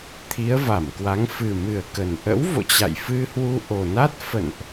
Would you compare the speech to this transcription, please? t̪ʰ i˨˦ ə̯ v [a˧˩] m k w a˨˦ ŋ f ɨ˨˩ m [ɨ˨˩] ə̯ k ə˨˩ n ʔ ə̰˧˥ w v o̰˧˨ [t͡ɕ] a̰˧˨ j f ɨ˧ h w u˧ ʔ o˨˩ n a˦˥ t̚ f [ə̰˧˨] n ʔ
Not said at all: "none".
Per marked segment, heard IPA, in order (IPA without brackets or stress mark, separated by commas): a˧˩, ɨ˨˩, t͡ɕ, ə̰˧˨